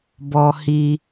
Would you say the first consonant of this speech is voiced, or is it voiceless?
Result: voiced